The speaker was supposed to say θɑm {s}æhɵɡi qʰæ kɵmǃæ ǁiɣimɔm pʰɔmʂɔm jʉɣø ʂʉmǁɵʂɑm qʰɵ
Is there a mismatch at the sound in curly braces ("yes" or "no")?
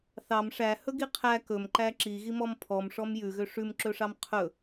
yes